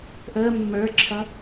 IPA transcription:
ʔəː mːə˞ǁʰʌ

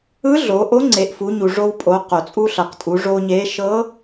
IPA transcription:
ɯ˧˥ɮo˩˧ ʔo˧˥ŋ͡ǀe˩˧ʔfu˩˧ɲu˩ ʐo˧wpʼo˩˧ qo˩t͡sʼu˧ɬɤ˩q tʼu˩˧ʐo˧ɲe˧˥ ʃɤ˧˥

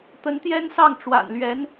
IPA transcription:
t̪ə˧˥nt̪jɛ˥nsɑ˥˩ŋ ʈ͡ʂwa̰˨˩nlɥɛ˧˥n

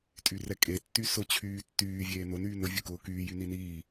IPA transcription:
tʼyrɛkʼe tːysʊ t͡ɕʰyːtːyː vʲeːnʊn yːnʊ vʲʊkʊːkyː jyniniː

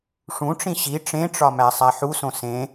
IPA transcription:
ʂũʈ͡ʂĩ ɕi ʈ͡ʂẽʈ͡ʂɒmæ sˤæħusõ sẽ

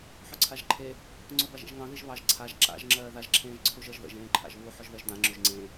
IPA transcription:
ħøǀʰaʒǃʰe | ŋ͡ǀobaʒḛʒŋɑ̃ ðiʒβɑʒ ǀʰaʒ ǁa̰ʒ ŋ͡ǁɜːðaʒ ǁʰẽːʒǀʰuʒɜʒðə̰ʒ ẽːǃʰa̰ʒβu ħʊʒðɜʒdã ŋ͡ǁøʒŋ͡ǀẽ

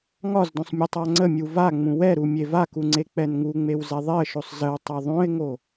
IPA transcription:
ŋɒzdõsˤ mʲətˤaŋ͡ǀəmʲu va ŋ͡mũwɛɾu mʲevaku ŋ͡ǀek͡pɛnŋuŋ͡mew zɛðˤeə̯ʃosˤ zəw tˤɛðˤõɪ̯ŋo

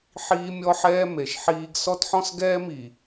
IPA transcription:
ħiː˦mʲɔ˦ħɛː˦ me˨ʃħiː˦ɡ sɔ˦tħɔ̃˦sɡɛː˦mi˨

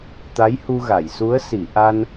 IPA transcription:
t̪a˧˥jhu˧ɣa˨˩˨jsu˧˥ə̯ si˨˩˨ ʔa˧n

